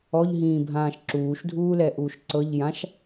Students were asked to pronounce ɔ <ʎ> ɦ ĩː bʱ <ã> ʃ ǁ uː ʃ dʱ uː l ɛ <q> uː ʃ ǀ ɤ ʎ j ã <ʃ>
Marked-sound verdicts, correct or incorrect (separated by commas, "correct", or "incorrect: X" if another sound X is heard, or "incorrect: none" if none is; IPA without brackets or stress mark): correct, incorrect: ãː, incorrect: ʔ, correct